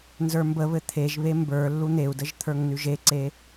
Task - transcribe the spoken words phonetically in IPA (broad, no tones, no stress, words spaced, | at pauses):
nzə˞mbəβɘ t̪ʰeʒβe mbə˞ lːun̪eu̯dəʒ t̪ʰə˞ŋnʉʒeǀe